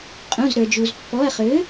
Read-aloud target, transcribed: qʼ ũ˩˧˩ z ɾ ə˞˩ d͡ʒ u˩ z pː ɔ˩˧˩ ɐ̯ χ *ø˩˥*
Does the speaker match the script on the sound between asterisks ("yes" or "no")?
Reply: yes